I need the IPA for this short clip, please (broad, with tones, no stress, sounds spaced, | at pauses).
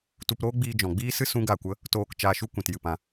t u˧ p ɾ oː˦ ɡ͡b iː˧ d͡ʒ ɔ̃˨ ɡ͡b iː˦ s ɨ˦ s ũ˦ ɡ a˦˨ kʷ ə˦ | t oː˧ k t͡ʃ aː˧ ʃ u˦ kʷ ĩ˨ t j ɨ˦˨ p ã˧